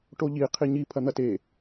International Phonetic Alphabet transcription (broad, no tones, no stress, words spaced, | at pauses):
ʈoʎi qʰiɲi pʰɐn̪ɐte